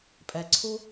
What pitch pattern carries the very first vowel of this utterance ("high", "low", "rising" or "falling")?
low